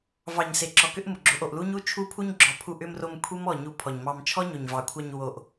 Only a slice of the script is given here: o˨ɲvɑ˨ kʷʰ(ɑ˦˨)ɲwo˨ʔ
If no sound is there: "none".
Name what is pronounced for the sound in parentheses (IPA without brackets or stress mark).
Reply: ɑ˧